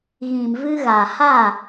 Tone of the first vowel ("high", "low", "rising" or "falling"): low